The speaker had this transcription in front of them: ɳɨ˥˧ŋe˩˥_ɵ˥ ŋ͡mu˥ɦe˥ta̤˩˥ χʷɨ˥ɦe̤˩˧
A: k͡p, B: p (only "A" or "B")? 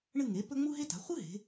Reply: B